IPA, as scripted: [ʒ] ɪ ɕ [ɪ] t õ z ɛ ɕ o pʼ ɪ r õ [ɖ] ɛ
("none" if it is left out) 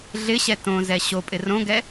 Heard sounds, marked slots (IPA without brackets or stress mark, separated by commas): ɮ, ɛ, ɡ